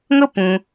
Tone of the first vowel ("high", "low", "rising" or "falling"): high